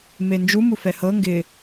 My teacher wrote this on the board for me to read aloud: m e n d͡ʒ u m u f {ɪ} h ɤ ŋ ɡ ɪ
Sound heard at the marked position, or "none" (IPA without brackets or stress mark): ɛ